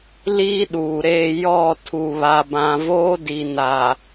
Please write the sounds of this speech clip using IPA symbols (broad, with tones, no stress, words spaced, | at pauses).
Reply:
liː˦ɗuː˨ɾeː˦˨ jɔ˦˨ tʰu˨βa˨bã˨ voː˦di˨naː˨